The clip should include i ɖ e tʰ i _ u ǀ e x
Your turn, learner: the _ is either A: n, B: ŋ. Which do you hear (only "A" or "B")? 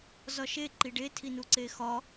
A